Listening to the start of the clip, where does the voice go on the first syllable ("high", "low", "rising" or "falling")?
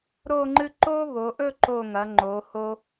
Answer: falling